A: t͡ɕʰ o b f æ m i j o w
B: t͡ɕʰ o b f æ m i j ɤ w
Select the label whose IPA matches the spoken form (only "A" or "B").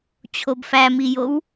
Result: A